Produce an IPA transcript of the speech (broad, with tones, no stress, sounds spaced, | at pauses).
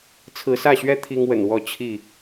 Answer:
t͡sʰ ɹ̩˨˦ s ä˥˨ ɕ ɥ ɛ˦ t̪ʰ i˦ ŋ w ə̰˨˩ n w ɔ˥˨ t͡ɕʰ i˥˨